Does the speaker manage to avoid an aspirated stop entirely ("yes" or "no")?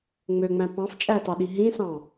yes